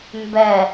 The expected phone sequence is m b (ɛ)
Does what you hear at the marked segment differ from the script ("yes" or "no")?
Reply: no